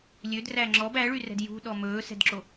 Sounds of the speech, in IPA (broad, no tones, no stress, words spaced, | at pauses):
lʲødræ ŋ͡ǁɔb æɭyrɛ̤d jṳɗɔ mɵːsɛ̤dǁo